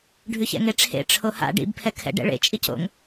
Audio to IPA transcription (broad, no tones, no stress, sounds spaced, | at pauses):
ɖʱ ʉ ç ɛ̰ ŋ e ʈ͡ʂʰ ḛ ʈ͡ʂʰ o h a̰ ɖ ḭ b pʰ ɛ kʰ ɛ̰ ɖ ɛ̰ ɭ ḛ t͡ʃʼ i c o̰ ŋ